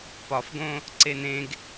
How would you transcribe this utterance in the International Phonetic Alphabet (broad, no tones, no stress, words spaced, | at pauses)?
pɒfɡõ | ǀenẽɡ